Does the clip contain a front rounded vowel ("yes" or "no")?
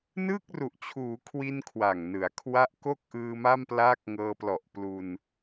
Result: no